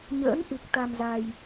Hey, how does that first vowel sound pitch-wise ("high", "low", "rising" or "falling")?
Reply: rising